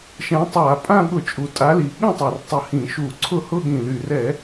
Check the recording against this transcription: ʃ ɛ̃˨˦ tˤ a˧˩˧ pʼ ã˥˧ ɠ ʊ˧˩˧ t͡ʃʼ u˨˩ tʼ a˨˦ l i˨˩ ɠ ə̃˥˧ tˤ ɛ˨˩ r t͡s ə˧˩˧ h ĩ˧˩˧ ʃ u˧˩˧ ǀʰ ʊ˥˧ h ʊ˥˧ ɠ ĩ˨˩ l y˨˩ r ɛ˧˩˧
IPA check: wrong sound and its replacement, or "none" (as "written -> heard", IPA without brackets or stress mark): t͡s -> tˤ